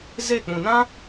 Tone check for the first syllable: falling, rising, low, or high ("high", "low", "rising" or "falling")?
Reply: falling